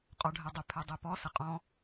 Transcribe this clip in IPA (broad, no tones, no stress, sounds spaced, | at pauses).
qʼ ɔ ɖʱ ɛ dˤ ə pʰ ɛ dˤ e p ɔ s ə qʼ ɔ̃